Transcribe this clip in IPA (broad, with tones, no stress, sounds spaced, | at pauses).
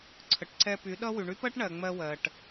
ǀʰ ə˨ ʈ ǀʰ ɛ˧ p y˨˦ ɗ ʌ˦ w y˨ ɳ y˦ p ɜ˦ ʈ ɳ ɜ˨ ŋ͡m ɜ˧ w ɜ˨ ʈ